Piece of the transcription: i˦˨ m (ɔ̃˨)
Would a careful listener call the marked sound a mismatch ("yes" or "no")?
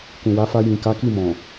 no